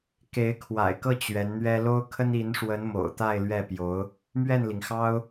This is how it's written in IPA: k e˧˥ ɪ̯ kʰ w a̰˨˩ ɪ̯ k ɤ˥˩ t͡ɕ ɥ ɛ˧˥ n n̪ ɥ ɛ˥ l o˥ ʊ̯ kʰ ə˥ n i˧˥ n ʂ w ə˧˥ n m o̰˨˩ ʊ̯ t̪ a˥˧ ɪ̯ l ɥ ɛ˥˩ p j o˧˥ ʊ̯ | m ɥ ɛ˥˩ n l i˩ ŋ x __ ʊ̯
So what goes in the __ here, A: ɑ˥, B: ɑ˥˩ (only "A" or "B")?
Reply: A